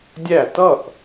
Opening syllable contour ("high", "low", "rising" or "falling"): falling